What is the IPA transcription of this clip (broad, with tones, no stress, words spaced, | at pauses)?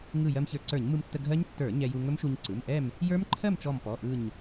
ŋɯ˧˩ jɜ˧mçə˞˧˩ǀə˞˧˩˧ɲ mɯ˧mtːə˧ɡʱɜ˦˥ɲ tːə˞˧˩˧ ɲɛ˧ ju˧ ŋɵ˦˥mʃu˧ɲ ǀɯ˩˧˩m ʔɛ˥˨m | jə˞˦˥mǃʰɜ˥˨mt͡ʃɔ˧˩m pɔ˩˧˩ʔɯ˧˩ɲ